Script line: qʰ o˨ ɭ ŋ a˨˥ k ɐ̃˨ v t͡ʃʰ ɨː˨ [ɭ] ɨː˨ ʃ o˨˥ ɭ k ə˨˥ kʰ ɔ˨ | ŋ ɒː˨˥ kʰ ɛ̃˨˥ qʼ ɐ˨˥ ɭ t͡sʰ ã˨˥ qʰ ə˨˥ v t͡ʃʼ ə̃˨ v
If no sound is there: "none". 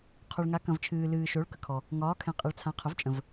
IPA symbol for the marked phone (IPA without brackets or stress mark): l